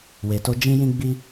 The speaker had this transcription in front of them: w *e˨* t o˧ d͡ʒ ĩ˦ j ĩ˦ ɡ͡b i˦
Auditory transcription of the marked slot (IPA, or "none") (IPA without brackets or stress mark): e˨